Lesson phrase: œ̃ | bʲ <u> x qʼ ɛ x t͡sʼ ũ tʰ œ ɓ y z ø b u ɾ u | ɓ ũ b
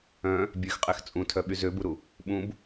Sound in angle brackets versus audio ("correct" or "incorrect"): incorrect